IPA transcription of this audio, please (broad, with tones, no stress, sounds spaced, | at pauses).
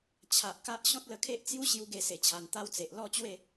t͡ɕʰ a˨ ʔ k a˦ ʔ ɕ ɔ̃˦ t̚ l ə˧ kʰ e˦ ʔ t͡s j u˦ ɕ j u˦ ɡ e˥˧ s e˧ t͡ɕʰ a˧ n t̪ a˦ w t͡s e˨ ʔ l ɔ˥˧ t͡ɕ w e˥˧